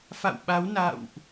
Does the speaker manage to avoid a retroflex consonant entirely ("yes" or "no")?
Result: yes